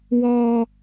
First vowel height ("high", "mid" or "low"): mid